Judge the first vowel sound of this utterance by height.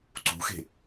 high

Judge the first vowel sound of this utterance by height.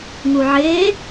high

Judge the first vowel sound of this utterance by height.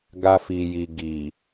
low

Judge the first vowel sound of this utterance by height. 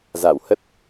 low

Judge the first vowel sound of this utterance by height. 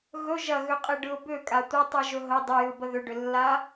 mid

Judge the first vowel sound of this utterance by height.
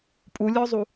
high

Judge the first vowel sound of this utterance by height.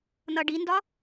mid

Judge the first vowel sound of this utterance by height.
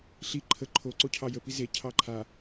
high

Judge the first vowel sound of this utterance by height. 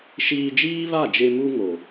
high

